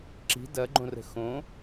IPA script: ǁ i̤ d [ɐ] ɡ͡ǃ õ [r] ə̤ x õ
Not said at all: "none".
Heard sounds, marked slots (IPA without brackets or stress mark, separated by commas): ɐ, r